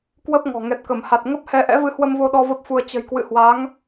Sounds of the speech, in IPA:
kwə˦˥p̚ŋɔ̤˨˩ ŋɛ˨˩t̚kə˧˩mha˨˩t̚ ŋə˦˥p̚hɛ˧ ʔɛ̰˧˥vɨ˨˦hwə˧m vo˧ɗɔ˧ və˦˥p̚fu˧ə̯ t͡ɕə̤˨˩jkwɨ̰˧˨hwa˨˦ŋ

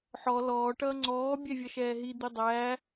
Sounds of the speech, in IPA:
ħɔ lɔːʈʌː ŋ͡ǀɔːbʲɛ vʲʌʃɛːɦid̪i dˤæ

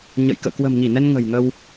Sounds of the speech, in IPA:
ɲə̰˧˨jkə̰ː˧˨ kwə̤˨˩mŋi˧˩nɛ˧n ŋə̤˨˩jŋə˧w

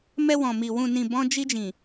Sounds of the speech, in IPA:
mɛ˧wɔ̃˨mi˨ wũ˨nĩ˨ bɔ̃˧d͡ʒi˧d͡ʒĩ˨

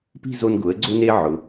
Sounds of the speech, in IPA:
pi̤˥˧zo˧n ɡʊ˩˧ə̯ɡ͡ǀʊ˧ne˧ ʕʊ˩˧

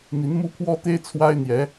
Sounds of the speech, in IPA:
n̪i˧˥nmu˥pʰwɔ˥t̪e˥ɪ̯ t͡sʰwa˥ɪ̯n̪jɛ˧˥

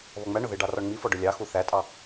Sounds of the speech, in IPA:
βɔŋ͡mæɳʊ ðɪɖɑ rɔɳŋ͡mifɔ ɖʊlʲɑxu θætʼɑ

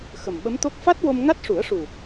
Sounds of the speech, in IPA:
xə˨˩mɓə˧˥mt̪o˦˥k̚ fa˦˥t̚wo˧m ŋa˦˥t̚ʂu˨˩˦ə̯ʂu˨˩

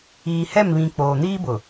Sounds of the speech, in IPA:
iː˨hɛ˦˨mβĩ˨ k͡poː˨ niː˦bʊ˨

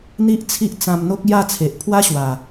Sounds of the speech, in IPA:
n̪i˦ʔt͡sʰi˦ʔ t͡sã˧mn̪o˦k̚ ja˥˧t͡sʰe˨ʔ pʰwa˦ɕwa˨˩

